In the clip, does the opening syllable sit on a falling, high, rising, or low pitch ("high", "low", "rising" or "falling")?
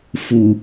low